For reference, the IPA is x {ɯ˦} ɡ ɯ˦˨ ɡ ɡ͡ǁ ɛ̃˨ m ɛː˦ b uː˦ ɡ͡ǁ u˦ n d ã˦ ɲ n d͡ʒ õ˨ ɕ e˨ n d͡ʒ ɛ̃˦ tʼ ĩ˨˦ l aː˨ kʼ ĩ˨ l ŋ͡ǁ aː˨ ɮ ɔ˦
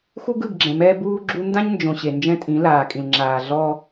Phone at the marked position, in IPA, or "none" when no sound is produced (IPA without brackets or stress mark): u˦